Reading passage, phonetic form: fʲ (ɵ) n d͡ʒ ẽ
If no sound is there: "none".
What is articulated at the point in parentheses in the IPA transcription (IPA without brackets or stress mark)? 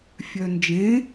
œ